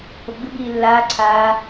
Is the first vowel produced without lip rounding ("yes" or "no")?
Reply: no